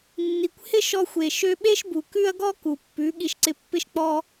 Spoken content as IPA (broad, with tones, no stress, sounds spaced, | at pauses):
nː i˨ kʷ h ɪ˦ ʃ ɔ˧ xʷ e˨ ʃ ø˧ ɓ e˦ ʃ b u˨ k ʉ˦ ɐ̯ ɡ ɔ˦ k u˨ pː ʉ˨˦ ɠ i˧ ʃ ǀ ɪ˧ pː ɪ˦ ʃ k͡p ɔ˦